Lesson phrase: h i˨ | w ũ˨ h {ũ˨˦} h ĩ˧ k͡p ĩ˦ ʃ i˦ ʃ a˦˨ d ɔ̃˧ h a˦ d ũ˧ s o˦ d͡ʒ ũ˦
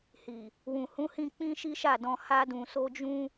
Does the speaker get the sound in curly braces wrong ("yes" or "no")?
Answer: no